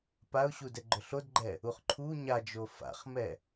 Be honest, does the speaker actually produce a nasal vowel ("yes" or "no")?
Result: no